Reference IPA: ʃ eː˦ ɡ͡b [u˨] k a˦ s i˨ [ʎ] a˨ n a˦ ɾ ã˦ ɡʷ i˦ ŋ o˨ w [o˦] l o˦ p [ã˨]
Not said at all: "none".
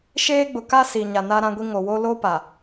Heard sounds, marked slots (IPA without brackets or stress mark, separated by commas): ʊ˨, ɲ, o˦, a˨